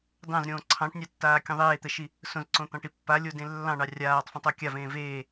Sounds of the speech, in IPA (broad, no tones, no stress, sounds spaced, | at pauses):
d ɑ̃ z ɾʲ õː ǀʰ ɑ̃ ʈ nʲ ɑ tː aː kʲ õ ðˤ eː t̪ ɛ ʃ i | s õ z ǀ õ t̪ ɑ̃ ʈ i pː a lʲ o d ẽ lː ɑ̃ ɳ ɑ rʲ aː tˤ f õ tˤ o kʲ a v ẽː v eː